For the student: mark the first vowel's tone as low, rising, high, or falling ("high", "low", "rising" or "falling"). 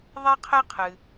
high